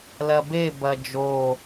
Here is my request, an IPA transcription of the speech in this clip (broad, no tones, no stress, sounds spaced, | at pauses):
l ɐ b e b ɐ d͡ʒ o